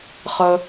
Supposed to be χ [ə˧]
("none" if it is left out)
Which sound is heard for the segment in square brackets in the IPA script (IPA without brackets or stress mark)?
ə˧